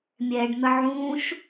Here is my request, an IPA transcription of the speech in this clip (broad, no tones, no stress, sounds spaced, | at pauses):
mʲ ɛ ɖ n̪ ə ʕ ũ ʃ